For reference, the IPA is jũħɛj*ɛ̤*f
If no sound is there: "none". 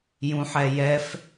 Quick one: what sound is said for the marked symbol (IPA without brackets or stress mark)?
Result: ɛ